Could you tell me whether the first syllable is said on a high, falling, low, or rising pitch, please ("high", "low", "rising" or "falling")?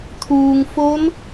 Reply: low